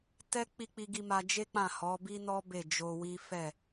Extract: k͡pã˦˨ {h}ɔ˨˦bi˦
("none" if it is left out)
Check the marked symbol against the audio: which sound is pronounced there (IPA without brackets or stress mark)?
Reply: h